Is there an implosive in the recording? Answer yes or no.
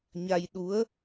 yes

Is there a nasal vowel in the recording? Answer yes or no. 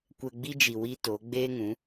yes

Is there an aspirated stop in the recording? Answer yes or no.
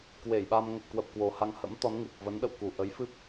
no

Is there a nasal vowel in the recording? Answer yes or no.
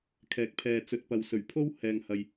no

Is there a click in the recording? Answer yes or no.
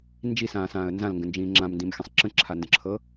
yes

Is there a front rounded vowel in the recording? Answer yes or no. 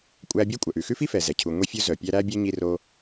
yes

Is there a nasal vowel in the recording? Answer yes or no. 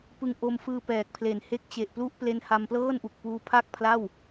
no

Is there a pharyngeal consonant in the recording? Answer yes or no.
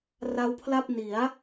no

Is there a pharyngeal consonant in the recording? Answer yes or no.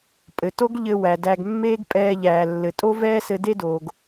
no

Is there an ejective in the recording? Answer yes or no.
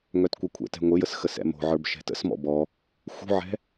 no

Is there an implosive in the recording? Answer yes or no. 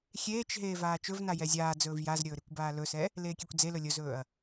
no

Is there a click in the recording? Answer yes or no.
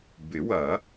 no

